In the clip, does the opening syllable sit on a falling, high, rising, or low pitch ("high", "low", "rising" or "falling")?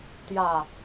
low